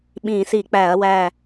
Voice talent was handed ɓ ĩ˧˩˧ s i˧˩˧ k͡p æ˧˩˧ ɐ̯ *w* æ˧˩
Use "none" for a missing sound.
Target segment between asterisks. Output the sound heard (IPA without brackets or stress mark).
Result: w